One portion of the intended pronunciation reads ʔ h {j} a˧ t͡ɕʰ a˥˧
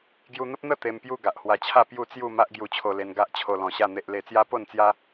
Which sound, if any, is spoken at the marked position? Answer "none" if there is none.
w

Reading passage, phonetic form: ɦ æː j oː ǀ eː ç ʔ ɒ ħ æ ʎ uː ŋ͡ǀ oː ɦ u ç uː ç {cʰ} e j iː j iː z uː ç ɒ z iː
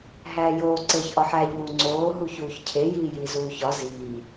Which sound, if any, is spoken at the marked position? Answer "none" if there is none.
cʰ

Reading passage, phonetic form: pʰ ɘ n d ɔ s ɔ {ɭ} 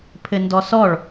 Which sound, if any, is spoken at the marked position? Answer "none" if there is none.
ɭ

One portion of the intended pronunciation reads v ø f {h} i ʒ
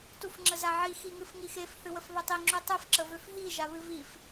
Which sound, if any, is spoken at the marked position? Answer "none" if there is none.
ɦ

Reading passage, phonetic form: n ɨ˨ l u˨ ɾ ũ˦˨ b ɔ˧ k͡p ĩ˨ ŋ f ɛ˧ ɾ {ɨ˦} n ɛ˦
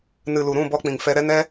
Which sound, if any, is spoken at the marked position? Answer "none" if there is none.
ɛ˦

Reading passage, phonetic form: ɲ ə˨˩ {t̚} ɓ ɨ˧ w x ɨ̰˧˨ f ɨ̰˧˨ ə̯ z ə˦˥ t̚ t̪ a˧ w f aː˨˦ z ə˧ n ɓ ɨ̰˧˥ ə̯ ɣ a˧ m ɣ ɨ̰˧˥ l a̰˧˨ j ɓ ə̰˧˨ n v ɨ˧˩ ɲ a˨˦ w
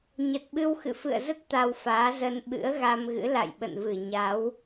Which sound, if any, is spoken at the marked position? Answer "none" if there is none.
t̚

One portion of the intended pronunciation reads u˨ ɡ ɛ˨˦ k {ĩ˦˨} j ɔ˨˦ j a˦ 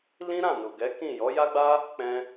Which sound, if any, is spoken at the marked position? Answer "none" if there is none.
ĩ˦˨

